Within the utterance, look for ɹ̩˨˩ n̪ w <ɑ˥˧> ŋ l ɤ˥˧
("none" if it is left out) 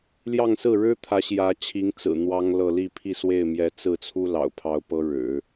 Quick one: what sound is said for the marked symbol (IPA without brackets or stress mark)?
ɑ˥